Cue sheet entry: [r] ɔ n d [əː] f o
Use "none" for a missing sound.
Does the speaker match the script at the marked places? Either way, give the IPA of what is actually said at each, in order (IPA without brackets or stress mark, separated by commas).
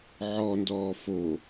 ʕ, ɔː